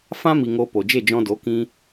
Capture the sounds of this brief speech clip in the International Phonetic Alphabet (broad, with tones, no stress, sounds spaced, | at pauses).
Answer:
f ã˦ m i˨ ŋ o˧ p o˨ d͡ʒ e˦˨ d͡ʒ ɔ̃˧ d o˨˦ k ĩ˦